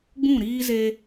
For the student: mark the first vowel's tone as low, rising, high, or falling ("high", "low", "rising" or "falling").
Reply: falling